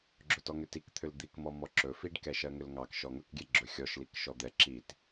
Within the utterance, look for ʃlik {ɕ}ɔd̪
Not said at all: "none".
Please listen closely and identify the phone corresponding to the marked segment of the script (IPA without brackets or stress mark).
ʃ